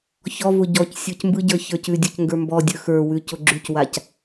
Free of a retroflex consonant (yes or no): yes